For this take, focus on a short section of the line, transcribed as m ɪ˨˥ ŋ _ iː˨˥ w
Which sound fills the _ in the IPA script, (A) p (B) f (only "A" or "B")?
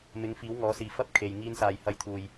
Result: B